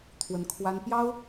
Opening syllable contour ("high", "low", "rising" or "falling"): rising